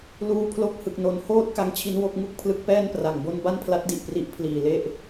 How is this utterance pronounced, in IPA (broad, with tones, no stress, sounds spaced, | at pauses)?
l uː˧ pʰ l o˦˥ k̚ h ɯ˨˩ k̚ n o˨˩ n h oː˥˩ t̚ k a˦˥ ŋ t͡ɕʰ i˦˥ n w o˦˥ k̚ ŋ u˥˩ k̚ pʰ l ɯ˦˥ k̚ p ɛː˥˩ n p r a˨˩ ŋ b o˥˩ n b a˥˩ n pʰ l a˦˥ t̚ d i˨˩ ʔ p r i˦˥ ʔ pʰ l iː˨˩ l e˥˩ ʔ